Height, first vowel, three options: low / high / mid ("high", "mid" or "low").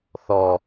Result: mid